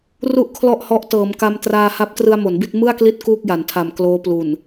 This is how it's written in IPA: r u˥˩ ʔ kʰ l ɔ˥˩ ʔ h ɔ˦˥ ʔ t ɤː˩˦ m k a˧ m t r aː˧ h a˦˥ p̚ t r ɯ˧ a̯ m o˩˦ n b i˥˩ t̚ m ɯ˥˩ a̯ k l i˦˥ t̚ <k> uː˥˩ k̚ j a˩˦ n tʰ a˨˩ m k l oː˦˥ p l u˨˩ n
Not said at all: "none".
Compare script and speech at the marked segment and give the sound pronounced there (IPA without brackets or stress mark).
k